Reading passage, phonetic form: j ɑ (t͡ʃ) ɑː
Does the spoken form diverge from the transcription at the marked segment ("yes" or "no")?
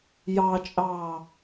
yes